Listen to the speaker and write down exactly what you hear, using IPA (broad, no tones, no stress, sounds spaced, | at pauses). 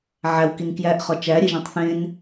ʕ æ w k i n k j æ ʔ χ ɒ t͡ʃ æ ɾʲ e ʒ ĩ tˤ θ ẽ n